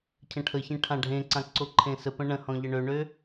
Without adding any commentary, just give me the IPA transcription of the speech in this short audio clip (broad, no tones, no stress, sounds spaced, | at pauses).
cʰ ə̃ ʈʰ ə ç ẽ ʈʰ ã ɖʱ ẽ ǀ ã ǀ o ǃʰ ẽ s ə p ə̃ ɳ ə̃ h ɔ̃ ʎ ə ɳ ø ɳ ø